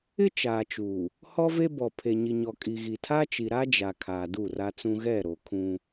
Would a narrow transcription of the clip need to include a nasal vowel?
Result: yes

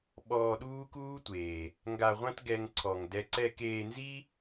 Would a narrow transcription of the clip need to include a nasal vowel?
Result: yes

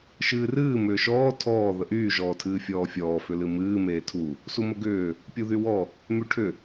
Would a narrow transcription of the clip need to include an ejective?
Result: no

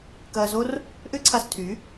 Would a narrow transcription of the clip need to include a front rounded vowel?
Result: yes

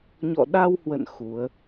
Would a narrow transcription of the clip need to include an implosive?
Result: yes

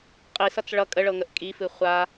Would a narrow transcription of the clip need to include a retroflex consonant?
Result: yes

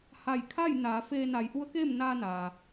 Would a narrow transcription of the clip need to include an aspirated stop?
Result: yes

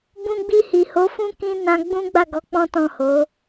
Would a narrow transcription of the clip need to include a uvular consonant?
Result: no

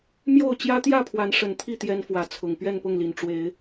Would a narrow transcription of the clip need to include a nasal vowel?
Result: no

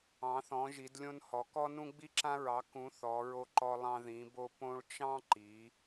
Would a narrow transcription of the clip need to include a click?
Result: yes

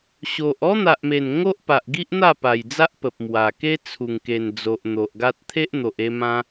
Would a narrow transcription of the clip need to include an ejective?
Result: no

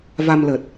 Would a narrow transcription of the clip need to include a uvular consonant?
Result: no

